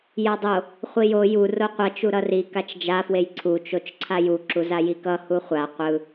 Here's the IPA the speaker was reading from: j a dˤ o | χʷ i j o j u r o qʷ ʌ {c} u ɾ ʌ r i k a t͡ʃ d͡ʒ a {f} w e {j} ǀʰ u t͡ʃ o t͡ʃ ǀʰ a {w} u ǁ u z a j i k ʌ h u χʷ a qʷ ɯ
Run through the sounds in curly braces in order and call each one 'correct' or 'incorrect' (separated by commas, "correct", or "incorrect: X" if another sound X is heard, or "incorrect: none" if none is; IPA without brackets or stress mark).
incorrect: t͡ʃ, correct, correct, incorrect: j